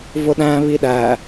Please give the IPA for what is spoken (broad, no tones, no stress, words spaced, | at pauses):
vʊɗæ̃ βiɗæ